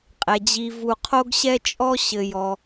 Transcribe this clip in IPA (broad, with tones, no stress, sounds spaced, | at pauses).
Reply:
qʼ ɛ˩ d͡ʑ i˨ v u˨ qʰ o˥ ɡ ɕ ɛ˥ t͡ʃʼ ɔ˥ ɕ ɘ˨ j ɔ˩